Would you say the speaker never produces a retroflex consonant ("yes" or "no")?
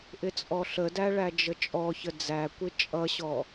no